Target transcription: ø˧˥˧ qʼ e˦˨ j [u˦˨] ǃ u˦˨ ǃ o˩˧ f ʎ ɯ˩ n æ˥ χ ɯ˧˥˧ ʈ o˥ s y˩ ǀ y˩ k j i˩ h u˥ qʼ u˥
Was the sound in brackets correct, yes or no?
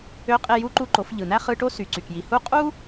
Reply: yes